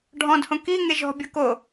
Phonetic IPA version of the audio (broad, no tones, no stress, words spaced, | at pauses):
ɖʱɔ̃dhõ ki ŋeʒɔ̤bʲɤ ko